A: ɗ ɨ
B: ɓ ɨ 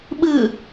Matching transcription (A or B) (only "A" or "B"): B